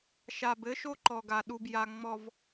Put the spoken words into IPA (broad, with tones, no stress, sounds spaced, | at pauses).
ʃ a˨ b ɘ˦ ʃ o˦ ǃ ɔ˨ ɡ a˨ ɗ u˨ b j a˨ ŋ͡m ɔ˨ v